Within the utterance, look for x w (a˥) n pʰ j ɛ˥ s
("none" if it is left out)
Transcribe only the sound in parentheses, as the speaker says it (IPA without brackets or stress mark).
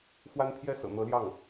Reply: a˥